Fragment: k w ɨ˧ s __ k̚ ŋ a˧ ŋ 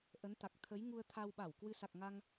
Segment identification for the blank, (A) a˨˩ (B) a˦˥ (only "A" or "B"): A